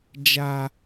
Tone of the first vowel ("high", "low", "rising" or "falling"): high